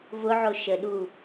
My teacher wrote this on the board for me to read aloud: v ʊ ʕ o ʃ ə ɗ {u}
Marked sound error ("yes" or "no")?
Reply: no